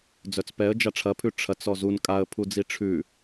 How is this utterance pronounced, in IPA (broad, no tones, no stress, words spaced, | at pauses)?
d͡zœt͡spɛə̯d͡ʒa ʈ͡ʂʰɐpʰʉ ʈ͡ʂʰɐt͡s ɔzun kʼaə̯pʰud͡zi ʈ͡ʂʰʉ